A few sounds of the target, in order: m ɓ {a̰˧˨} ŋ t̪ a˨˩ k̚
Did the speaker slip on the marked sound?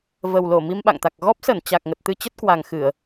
no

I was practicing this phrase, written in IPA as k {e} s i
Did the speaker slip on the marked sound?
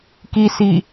yes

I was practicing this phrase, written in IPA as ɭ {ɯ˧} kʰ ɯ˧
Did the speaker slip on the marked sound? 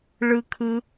no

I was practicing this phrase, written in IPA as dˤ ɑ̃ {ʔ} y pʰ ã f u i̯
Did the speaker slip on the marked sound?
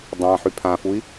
yes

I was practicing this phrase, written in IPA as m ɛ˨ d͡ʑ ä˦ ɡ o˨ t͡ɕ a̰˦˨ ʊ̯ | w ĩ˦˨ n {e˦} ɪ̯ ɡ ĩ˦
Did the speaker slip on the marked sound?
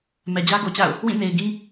yes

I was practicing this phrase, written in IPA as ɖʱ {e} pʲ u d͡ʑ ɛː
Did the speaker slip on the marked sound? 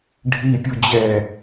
yes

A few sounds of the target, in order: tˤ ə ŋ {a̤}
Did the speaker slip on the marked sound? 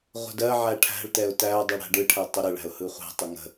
yes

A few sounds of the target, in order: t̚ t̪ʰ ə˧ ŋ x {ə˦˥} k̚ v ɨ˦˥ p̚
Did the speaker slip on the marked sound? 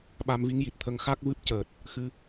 yes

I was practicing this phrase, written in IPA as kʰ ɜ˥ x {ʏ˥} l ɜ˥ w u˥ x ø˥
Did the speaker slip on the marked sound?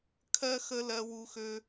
yes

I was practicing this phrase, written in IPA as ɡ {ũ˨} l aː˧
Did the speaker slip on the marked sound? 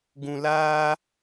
no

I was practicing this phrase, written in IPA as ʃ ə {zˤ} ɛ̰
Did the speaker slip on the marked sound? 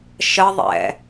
yes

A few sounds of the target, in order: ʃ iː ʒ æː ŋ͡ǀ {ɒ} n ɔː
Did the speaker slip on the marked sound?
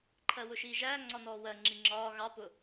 no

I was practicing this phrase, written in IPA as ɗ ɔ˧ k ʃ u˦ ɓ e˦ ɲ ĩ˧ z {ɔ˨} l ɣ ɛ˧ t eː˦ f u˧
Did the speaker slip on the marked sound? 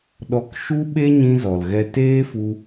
no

